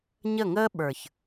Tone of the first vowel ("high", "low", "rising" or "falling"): falling